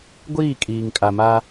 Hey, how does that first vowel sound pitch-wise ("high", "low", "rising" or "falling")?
falling